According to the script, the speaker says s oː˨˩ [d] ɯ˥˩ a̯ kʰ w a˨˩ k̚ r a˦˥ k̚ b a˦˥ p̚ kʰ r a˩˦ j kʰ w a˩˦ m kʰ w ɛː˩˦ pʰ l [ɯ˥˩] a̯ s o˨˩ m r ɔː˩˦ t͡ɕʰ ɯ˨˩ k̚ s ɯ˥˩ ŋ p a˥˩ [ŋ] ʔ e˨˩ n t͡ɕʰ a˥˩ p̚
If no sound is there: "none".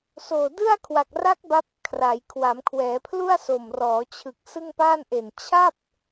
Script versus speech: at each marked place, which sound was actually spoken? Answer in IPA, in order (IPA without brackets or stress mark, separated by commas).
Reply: d, u˥˩, n